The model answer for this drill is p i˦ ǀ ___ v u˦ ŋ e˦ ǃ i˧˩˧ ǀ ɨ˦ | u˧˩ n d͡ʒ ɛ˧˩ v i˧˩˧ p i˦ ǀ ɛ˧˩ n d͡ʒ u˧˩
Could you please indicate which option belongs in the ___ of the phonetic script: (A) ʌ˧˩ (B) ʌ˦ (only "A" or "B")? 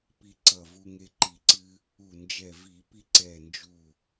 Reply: A